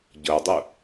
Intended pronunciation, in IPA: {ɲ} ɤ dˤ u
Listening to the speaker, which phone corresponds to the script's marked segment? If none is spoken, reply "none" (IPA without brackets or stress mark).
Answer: ɟ